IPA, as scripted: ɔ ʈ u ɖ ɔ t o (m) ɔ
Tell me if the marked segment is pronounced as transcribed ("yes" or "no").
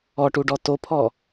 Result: no